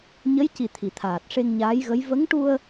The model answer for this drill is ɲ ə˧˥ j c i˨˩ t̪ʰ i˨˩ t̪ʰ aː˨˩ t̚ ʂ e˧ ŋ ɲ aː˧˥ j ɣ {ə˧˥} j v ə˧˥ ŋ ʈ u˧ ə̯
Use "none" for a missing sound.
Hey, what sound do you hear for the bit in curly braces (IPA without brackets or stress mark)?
ə˧˥